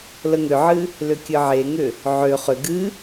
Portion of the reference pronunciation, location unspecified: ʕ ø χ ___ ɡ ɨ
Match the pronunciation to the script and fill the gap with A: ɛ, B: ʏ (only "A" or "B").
B